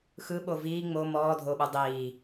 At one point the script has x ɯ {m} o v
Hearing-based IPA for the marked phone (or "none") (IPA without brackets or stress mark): ɓ